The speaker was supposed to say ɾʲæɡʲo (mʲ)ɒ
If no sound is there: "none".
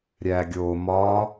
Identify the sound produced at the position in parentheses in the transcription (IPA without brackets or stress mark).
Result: m